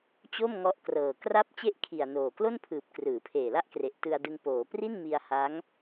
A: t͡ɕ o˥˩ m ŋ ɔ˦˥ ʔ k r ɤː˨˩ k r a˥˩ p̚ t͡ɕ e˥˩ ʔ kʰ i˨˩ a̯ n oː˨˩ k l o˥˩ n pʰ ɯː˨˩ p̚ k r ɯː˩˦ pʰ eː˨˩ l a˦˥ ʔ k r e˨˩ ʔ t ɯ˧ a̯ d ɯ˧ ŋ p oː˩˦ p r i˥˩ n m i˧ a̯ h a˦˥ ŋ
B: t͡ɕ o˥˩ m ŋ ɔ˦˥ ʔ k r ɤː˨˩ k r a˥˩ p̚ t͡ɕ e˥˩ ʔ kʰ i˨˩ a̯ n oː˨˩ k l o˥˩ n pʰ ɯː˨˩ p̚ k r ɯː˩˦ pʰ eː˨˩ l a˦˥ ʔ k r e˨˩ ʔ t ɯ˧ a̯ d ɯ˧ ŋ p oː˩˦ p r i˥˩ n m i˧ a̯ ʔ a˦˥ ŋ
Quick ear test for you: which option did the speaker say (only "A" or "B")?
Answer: A